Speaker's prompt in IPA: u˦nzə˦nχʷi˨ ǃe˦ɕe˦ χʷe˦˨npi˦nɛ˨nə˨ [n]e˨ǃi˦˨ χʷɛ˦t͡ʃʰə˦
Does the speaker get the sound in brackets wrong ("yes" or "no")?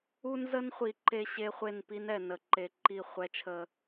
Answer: yes